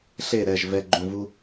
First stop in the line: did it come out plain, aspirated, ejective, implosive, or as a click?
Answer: click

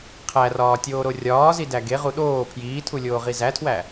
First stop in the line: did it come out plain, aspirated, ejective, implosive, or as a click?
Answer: aspirated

